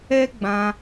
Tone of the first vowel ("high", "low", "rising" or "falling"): high